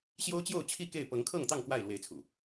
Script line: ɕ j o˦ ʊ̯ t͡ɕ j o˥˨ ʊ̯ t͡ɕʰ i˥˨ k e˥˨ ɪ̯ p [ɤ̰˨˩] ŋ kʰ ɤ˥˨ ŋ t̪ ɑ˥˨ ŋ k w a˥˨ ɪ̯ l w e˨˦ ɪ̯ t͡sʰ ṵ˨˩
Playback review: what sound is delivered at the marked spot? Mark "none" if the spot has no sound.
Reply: ɤ˨˦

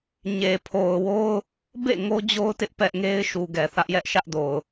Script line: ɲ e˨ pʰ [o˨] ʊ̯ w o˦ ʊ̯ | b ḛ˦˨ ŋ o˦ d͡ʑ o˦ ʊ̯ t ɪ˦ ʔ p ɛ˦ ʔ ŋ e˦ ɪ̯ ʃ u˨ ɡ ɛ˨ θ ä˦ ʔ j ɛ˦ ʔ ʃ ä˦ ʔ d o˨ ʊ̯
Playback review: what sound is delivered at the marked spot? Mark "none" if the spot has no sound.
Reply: o˨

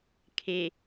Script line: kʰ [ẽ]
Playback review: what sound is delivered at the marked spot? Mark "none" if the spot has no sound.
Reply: e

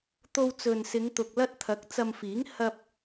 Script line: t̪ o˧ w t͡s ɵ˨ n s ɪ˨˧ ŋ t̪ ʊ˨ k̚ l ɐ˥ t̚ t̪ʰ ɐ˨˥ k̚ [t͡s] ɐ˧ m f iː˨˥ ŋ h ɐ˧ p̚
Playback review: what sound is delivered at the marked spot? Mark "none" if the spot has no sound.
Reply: t͡s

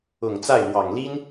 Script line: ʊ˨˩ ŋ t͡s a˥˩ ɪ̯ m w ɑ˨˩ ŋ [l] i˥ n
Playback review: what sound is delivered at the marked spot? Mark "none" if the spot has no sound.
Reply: l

